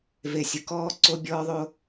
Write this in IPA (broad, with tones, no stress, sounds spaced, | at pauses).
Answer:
v e˨ sʲ ʊ˨ k ɔː˦ ǀ o˦ bʲ ɔː˦ ðˤ o˦